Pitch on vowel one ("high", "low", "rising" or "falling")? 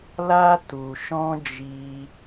high